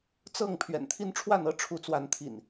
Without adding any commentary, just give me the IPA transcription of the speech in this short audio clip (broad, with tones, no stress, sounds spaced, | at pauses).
t͡s ɤ˥˨ ŋ pʰ ɥ ɛ̰˨˩ n t̪ʰ i˦ n ʈ͡ʂʰ w a˥˨ n ɤ˦ ʈ͡ʂʰ u˨˦ t͡s w a˨˦ n t̪ʰ ḭ˨˩ n